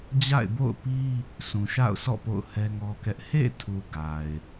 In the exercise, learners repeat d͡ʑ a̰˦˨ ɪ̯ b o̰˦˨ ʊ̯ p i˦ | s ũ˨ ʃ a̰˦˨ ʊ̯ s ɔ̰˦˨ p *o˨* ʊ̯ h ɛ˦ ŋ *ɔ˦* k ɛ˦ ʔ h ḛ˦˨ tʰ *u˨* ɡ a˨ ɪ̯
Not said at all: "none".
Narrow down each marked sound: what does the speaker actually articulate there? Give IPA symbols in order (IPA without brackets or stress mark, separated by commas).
o̰˦˨, ɔ˦, u˨